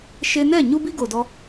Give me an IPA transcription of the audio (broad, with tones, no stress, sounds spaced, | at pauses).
ʃ e˧ n ɛ˦˨ ɲ u˦ b i˦ ɡ o˨ d ɔ˧